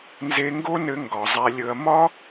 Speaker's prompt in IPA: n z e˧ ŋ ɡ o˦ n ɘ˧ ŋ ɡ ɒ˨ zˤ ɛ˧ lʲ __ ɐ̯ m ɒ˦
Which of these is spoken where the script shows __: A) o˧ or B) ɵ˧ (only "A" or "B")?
B